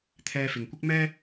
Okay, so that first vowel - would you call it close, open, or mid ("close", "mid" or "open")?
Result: mid